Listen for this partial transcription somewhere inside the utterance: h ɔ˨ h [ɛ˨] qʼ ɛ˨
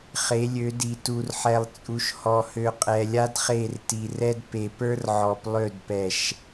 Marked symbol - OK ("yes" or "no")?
no